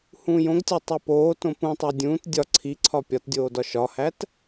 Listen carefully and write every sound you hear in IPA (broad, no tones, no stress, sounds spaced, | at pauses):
h ũː j õ ɡ tʲ ɒ tˤ i p oː t õ p ũ tˤ æ dʲ ũː t dʲ ɒ ǀʰ i ǀʰ ɒ pʲ ɒ t dʲ oː d ɒ ʃ ɒ h æ t